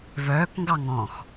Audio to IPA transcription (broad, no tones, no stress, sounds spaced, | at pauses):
v œː k ŋ ɡ ɑ ŋ ɔ̃ x